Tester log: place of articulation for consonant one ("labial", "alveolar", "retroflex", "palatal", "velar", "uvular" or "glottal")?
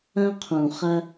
uvular